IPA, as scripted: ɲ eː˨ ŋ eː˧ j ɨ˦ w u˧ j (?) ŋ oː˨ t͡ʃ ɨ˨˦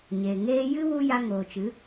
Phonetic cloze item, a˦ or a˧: a˧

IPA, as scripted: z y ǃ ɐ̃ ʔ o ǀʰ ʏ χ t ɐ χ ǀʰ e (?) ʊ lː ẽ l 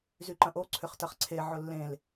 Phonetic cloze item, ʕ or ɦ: ʕ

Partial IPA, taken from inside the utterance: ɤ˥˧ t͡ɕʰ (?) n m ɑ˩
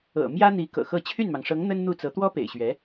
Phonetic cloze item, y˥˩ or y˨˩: y˥˩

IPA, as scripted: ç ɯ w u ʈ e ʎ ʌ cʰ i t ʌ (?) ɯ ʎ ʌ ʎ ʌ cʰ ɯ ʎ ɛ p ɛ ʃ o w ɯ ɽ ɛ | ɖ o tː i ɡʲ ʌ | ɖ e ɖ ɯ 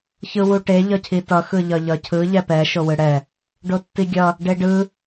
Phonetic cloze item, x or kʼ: x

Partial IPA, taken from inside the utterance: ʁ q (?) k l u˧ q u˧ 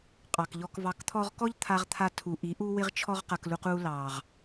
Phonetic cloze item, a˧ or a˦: a˧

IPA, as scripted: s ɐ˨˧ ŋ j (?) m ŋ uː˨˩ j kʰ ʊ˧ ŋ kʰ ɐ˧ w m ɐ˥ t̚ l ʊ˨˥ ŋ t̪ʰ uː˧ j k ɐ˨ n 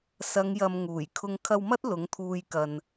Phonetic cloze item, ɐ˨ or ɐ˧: ɐ˨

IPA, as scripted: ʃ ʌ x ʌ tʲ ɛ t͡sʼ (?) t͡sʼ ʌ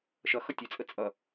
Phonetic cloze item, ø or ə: ə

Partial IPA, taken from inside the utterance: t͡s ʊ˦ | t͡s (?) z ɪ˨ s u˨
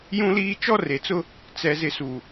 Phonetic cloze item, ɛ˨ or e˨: ɛ˨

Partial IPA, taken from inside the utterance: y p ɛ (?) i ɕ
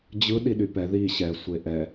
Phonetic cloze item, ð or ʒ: ð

